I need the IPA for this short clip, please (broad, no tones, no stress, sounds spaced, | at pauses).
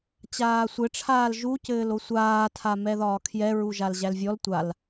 t͡ɕ aː sʷ ɘ ʈ͡ʂʰ aː l ʒ u c ɘː l o sʷ aː tʰ a m ɛ ð ɒː kʰ j ɛ ɹ u ʒ a l ʑ æ l vʲ ɔ l tʷ a l